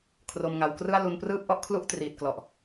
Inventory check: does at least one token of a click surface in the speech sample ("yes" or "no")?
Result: no